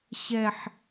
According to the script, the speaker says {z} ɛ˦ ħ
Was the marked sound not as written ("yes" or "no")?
yes